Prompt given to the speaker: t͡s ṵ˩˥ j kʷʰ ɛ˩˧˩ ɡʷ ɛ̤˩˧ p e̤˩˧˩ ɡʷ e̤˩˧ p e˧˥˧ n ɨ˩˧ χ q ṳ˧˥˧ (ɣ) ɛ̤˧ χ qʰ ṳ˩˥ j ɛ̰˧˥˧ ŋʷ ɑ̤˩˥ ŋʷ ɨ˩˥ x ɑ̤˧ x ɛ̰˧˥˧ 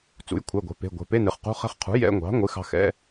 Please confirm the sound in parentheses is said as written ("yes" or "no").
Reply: no